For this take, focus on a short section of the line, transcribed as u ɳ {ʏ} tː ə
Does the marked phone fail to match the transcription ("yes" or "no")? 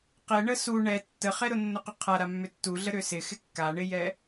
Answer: yes